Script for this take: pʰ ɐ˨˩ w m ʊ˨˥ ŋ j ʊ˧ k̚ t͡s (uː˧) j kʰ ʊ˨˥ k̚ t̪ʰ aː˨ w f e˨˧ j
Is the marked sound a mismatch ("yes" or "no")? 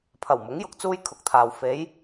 yes